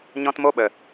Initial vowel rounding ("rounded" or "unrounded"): rounded